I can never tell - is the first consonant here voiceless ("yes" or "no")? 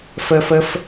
yes